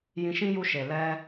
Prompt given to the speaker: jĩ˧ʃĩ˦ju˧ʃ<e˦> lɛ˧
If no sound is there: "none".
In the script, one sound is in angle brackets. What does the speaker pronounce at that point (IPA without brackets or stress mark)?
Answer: e˨